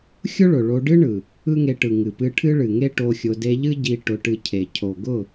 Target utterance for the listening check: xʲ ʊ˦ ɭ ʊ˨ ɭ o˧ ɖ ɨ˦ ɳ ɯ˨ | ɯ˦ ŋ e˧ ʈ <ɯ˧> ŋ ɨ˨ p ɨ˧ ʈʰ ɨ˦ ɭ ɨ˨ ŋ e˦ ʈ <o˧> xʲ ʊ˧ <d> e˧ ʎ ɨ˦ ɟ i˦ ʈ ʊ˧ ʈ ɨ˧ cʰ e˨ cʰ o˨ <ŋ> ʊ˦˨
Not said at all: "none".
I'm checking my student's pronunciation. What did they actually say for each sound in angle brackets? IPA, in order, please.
ɯ˨, o˧, d, ɡ

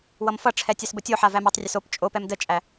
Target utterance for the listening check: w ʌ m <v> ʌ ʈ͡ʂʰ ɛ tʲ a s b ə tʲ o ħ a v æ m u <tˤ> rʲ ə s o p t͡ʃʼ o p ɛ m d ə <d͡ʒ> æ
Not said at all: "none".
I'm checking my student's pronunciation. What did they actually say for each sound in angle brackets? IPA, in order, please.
f, tˤ, t͡ʃʼ

